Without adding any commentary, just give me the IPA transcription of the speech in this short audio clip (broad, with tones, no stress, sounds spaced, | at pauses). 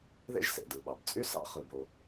ð ḛ˥ ʒ s ḛ˩ d ɯ˩ ɓ ɑ˩ b t͡sʼ y˥ s ɑ̰˥ χ ɯ˩ b o˩